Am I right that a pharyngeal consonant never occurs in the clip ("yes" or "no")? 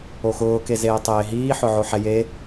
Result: no